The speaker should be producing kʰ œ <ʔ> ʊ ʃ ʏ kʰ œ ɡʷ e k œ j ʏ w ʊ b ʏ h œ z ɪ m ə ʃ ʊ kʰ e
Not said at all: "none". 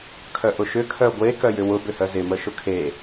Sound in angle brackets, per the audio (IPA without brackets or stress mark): ʔ